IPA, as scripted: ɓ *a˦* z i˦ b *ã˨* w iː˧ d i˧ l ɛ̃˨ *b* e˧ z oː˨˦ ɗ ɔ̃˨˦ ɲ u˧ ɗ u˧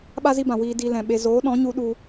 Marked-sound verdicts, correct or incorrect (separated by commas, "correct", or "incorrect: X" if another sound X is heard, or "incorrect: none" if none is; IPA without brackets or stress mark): correct, correct, incorrect: ɓ